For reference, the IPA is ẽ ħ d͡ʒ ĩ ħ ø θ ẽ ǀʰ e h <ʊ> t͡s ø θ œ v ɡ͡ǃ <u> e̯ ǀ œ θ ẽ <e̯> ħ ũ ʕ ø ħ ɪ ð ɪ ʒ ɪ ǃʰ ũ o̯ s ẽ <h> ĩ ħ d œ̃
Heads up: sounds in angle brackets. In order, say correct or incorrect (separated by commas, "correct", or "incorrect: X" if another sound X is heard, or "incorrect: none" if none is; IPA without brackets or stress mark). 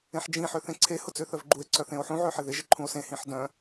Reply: correct, correct, incorrect: o̯, correct